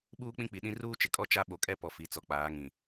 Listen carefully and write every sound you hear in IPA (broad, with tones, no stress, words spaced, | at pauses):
ɓuː˦k͡pĩ˦k͡pi˨ɗĩ˦ ruː˦t͡ʃɪ˨kʼɔ˦ t͡ʃa˦ ɓo˨kʼɛ˦ pɔ˨ fi˨t͡sɔ˨k͡paː˨˦ŋĩ˨